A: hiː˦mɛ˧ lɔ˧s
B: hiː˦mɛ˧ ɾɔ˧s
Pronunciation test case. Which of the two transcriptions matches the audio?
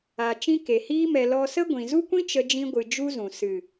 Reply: A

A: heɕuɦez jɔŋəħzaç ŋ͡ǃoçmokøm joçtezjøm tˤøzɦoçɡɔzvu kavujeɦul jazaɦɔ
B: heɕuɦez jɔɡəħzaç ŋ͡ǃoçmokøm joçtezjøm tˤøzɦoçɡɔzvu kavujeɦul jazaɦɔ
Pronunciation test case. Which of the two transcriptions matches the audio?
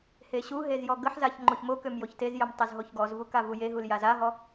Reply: B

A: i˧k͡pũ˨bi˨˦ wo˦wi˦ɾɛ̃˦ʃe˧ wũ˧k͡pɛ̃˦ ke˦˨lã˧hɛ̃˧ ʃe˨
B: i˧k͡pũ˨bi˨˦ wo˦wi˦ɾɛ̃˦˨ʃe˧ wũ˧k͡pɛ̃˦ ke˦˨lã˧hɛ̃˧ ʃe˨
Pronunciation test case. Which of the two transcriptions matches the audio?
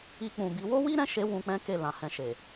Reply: B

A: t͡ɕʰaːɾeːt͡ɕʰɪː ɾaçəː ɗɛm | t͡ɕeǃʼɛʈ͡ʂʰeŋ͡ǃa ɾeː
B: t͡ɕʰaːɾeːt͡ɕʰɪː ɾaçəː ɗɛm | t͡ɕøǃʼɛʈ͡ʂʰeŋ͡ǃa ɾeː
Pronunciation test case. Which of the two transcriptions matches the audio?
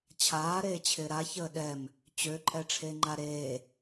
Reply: B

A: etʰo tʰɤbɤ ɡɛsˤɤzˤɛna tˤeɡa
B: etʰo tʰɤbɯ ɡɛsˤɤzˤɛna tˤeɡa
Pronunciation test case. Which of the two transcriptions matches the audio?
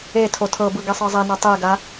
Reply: B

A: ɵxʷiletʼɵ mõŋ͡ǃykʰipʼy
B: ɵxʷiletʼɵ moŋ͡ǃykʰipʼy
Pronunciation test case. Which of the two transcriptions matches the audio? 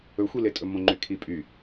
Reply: A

